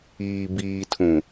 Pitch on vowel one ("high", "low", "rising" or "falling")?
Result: low